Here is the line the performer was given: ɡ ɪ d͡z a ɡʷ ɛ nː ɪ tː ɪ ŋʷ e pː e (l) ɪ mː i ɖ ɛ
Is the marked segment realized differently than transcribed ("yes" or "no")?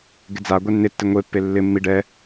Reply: yes